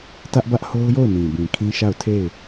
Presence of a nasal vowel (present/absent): present